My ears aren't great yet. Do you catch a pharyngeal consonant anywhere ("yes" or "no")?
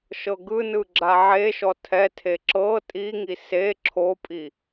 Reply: yes